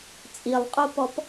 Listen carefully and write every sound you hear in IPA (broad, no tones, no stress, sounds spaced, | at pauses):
t͡sʼ i lˠ qʼ o p ɔ p